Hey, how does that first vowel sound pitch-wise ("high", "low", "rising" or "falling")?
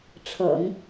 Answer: low